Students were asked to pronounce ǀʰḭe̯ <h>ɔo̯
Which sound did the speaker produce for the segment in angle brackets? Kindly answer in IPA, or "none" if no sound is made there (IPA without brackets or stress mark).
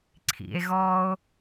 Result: ɣ